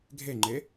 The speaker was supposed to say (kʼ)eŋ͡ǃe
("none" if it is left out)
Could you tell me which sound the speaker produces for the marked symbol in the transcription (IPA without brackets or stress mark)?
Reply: ɡʱ